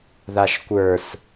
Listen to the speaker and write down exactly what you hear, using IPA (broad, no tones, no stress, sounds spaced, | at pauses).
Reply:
ð a ʃ kʷ ə˞ s